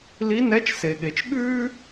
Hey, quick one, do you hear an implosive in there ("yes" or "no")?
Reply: yes